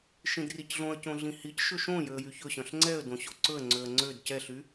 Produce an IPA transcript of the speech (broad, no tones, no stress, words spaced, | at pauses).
ʃĩdricɮõə̯cõ ɮĩhicʃɵ ʃõ jøə̯jyçɵɕœ̃ɬ ŋ͡ǀɛə̯ dõɕoǀɵə̯ŋ͡ǀøə̯ ŋ͡ǀød cɛɬy